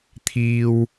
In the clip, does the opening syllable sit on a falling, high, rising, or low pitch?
low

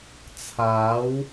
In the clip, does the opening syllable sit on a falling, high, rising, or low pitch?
rising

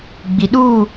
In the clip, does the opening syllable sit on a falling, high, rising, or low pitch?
low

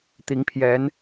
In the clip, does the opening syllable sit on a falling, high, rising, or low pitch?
rising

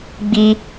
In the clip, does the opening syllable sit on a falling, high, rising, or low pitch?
high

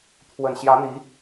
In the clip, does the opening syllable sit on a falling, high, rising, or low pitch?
low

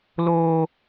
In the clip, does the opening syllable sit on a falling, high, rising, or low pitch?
high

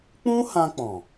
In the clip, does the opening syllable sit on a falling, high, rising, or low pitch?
high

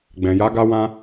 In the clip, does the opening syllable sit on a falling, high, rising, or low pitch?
low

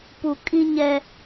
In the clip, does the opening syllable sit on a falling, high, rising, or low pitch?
low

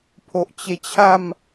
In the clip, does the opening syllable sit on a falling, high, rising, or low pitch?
low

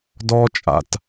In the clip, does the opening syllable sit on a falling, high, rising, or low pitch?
high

